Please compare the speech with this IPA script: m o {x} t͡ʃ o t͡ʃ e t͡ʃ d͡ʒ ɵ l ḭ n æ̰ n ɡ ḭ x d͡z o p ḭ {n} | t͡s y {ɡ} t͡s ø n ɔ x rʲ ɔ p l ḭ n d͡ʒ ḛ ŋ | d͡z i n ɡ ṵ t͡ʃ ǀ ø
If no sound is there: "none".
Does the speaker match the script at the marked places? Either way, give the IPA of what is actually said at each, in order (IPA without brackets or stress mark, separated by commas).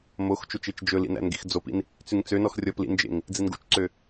x, n, ŋ